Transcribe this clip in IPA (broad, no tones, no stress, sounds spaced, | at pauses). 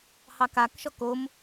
h ɑ k a k ʃ ɔ k o m